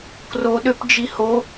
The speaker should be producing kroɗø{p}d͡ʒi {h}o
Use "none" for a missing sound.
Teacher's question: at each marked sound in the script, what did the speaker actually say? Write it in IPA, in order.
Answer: p, h

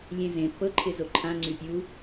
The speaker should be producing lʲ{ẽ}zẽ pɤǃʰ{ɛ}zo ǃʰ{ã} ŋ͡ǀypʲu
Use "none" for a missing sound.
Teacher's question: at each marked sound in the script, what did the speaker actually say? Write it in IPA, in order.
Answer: ẽ, ɪ, ã

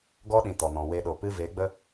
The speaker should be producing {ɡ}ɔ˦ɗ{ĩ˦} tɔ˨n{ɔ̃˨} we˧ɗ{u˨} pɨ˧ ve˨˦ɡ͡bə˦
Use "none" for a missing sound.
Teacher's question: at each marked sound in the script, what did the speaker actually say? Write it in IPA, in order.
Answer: ɡ, ĩ˨, ɔ̃˨, o˨

